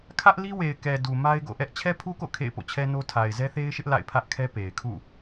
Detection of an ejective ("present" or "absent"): absent